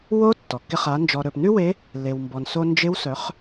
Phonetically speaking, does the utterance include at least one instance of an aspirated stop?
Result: no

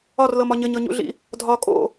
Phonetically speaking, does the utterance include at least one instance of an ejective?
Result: yes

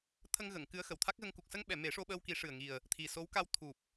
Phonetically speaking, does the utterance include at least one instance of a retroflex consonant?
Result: yes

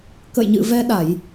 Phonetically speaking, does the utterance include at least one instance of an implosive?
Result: yes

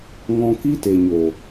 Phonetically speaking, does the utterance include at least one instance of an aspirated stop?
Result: no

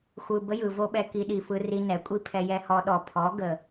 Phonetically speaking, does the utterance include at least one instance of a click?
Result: no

